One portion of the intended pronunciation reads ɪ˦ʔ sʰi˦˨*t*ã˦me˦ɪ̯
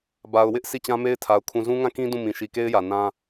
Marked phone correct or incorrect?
incorrect